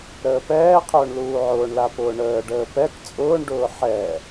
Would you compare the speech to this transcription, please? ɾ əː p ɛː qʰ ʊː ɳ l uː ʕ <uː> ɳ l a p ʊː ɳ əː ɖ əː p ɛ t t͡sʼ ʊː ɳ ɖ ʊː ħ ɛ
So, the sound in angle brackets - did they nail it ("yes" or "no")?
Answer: no